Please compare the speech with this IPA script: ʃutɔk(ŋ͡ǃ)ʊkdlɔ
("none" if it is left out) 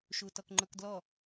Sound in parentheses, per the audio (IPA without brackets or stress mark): ŋ͡ǃ